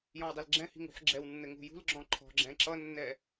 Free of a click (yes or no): no